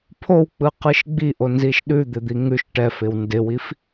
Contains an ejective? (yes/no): no